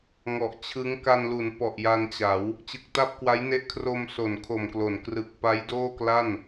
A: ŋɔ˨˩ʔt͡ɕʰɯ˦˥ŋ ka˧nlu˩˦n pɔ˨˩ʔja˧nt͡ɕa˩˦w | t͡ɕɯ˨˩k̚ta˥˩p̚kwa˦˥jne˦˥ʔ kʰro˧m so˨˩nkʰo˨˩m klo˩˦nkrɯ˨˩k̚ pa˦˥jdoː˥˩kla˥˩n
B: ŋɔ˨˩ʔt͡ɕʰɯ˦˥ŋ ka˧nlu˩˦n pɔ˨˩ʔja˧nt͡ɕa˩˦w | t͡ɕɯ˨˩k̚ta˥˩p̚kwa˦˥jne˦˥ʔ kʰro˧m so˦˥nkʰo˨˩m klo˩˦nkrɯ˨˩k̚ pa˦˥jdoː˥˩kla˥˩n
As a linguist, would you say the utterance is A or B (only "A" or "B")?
A